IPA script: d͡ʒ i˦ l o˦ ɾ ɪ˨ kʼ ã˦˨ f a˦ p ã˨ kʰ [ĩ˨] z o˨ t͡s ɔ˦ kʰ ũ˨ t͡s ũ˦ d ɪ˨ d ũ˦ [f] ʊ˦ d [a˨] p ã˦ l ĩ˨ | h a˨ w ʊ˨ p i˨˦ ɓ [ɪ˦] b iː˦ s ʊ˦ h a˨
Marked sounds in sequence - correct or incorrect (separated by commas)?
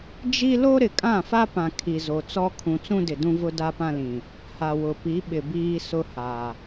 incorrect, incorrect, incorrect, incorrect